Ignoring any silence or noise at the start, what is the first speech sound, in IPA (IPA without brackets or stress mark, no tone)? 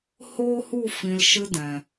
h